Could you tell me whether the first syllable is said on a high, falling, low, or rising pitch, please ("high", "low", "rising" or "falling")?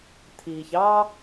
low